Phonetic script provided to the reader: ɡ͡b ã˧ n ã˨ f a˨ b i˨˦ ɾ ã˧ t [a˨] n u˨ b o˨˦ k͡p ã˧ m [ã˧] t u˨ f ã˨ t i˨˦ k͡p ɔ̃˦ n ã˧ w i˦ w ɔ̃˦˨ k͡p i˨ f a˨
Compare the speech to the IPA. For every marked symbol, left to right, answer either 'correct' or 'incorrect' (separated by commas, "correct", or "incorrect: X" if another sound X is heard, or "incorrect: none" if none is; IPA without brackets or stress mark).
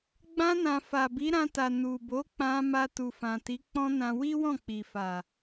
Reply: correct, incorrect: a˧